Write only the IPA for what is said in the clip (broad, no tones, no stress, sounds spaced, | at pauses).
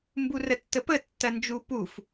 m b u r ə tː ə p ə tː ɐ n d͡ʒ u p u f